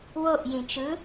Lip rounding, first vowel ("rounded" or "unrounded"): rounded